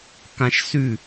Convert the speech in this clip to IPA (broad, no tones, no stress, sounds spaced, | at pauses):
k ã ʃ s ʉ